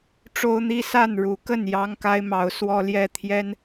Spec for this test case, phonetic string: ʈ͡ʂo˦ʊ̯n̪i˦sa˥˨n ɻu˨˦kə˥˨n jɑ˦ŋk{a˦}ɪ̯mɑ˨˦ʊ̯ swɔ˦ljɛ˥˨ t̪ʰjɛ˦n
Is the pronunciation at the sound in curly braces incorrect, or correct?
correct